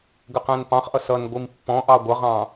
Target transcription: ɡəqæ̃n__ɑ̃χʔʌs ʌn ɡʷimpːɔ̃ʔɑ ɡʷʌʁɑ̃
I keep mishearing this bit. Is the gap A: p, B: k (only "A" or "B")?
A